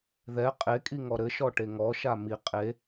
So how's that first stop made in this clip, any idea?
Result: ejective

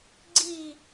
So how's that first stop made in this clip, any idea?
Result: click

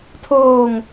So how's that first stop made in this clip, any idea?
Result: aspirated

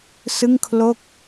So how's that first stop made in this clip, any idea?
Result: aspirated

